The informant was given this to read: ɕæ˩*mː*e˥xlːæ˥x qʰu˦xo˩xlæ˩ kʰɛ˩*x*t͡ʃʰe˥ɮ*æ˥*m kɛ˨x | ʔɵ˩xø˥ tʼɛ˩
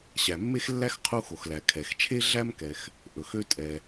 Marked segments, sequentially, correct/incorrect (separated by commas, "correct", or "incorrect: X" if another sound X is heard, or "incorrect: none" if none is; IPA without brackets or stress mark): correct, correct, correct